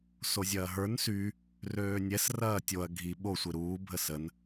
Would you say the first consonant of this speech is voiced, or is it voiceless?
voiceless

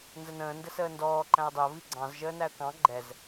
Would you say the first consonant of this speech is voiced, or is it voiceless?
voiced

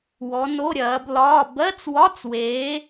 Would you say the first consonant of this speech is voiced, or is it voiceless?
voiced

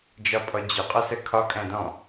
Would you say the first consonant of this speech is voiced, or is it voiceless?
voiced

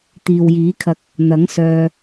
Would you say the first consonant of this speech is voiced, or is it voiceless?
voiceless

